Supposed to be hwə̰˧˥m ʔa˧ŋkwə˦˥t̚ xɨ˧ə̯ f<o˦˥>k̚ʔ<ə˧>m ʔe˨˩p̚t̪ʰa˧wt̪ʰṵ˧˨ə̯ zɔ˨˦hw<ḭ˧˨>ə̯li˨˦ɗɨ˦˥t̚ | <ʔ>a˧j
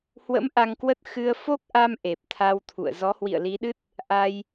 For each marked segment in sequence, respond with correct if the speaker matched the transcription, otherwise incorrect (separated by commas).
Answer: correct, incorrect, correct, correct